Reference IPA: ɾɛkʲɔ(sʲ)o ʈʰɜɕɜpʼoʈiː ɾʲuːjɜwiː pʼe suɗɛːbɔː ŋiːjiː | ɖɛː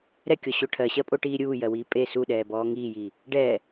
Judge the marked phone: incorrect: ɕ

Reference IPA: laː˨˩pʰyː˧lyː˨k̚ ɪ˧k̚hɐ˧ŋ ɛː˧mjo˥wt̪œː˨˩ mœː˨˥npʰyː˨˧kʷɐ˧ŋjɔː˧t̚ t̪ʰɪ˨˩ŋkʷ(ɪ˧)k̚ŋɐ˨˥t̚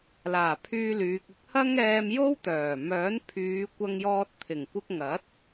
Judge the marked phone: correct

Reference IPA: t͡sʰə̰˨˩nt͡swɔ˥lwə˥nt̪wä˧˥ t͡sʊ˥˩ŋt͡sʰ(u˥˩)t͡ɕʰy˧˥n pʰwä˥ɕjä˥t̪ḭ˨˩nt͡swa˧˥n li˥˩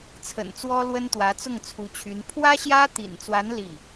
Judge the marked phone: incorrect: u˧˥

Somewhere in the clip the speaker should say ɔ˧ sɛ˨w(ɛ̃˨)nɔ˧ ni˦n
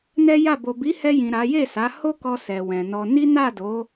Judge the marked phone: correct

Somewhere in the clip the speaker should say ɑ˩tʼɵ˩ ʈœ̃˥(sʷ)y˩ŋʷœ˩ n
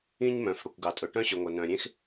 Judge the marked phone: incorrect: ɕ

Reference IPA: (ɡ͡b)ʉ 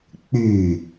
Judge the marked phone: incorrect: k͡p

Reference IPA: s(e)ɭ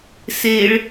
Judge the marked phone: correct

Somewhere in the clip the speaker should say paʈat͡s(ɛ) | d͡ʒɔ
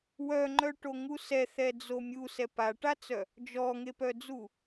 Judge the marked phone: incorrect: œ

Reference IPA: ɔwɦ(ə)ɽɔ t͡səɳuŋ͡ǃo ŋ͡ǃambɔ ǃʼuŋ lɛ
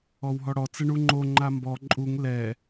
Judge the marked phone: incorrect: ɔ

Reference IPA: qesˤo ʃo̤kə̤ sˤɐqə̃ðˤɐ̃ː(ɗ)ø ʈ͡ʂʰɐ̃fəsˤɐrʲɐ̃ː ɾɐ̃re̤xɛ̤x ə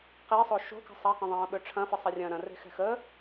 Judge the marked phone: incorrect: ɓ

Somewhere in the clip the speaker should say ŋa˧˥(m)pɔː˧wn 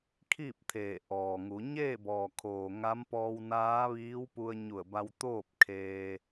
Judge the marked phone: correct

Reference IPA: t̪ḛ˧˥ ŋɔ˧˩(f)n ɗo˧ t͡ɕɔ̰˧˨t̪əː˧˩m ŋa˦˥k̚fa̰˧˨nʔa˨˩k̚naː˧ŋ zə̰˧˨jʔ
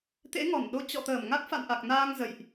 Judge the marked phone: incorrect: none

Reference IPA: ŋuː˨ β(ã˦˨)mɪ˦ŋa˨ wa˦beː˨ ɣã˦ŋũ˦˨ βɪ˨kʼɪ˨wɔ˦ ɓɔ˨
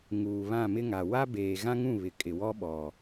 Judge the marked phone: correct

